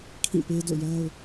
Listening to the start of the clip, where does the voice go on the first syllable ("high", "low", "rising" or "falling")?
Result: falling